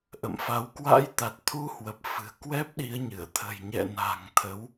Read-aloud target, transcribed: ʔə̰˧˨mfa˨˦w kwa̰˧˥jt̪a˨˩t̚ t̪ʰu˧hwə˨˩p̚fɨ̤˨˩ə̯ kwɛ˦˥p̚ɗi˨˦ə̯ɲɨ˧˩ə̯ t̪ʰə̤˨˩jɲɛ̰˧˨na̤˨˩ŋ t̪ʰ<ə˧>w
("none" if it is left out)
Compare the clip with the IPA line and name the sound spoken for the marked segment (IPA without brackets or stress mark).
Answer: ə˨˦